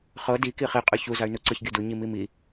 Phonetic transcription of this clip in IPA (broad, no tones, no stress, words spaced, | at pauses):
χɤ di kiχi qʼɯçu zay̯nuǀɯç ɡʲodu ɲimimi